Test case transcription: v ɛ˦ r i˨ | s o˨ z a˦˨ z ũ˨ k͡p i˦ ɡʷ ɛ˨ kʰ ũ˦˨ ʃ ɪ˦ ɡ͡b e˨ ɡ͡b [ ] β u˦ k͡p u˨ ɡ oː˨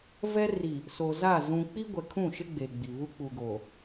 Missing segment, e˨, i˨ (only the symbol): i˨